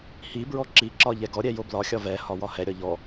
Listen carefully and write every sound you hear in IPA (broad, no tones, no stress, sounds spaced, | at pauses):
h i b ɹ ɔ ǁ i ǁ ɒ ʎ ɛ ɡ ɔ ɾʲ ɛ j o b l ɒ xʲ ɒ v ɛ h ɒ w ɒ h ɛ ɾʲ ɒ ʎ ɔ